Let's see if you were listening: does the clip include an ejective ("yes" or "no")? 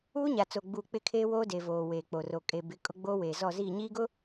yes